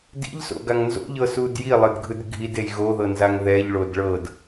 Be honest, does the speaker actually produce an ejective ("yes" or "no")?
no